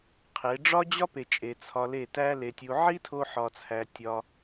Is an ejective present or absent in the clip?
present